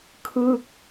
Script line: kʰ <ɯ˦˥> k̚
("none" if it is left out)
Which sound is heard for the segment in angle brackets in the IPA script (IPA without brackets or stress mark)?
ɯ˥˩